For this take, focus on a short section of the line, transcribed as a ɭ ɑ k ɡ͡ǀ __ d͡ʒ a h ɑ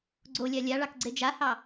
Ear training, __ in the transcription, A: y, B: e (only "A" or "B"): B